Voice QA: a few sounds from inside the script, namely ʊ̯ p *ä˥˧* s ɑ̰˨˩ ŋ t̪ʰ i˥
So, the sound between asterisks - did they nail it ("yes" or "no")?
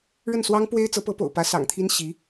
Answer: no